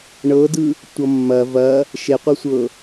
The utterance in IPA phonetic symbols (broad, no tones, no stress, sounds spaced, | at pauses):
ɳ ɤ d ɯ | tʷ ʌ mː ɐ v ɐ | ʃ e qʷ ɤ sʷ ɤ